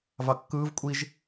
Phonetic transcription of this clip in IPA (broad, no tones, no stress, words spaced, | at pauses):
vɑkːɯːv kʷʼiʒ